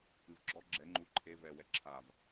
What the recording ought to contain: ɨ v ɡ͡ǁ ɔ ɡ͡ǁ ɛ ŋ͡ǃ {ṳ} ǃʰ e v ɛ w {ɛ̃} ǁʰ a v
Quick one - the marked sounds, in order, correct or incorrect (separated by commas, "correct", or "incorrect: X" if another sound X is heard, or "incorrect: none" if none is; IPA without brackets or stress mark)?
incorrect: u, incorrect: ɛ